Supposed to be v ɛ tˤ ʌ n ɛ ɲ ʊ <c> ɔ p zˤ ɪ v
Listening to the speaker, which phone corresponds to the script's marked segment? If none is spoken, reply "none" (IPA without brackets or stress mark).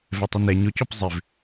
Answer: c